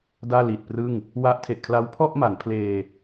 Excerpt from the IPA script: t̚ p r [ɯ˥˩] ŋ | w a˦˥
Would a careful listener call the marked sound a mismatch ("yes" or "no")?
no